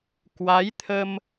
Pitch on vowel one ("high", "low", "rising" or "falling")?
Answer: rising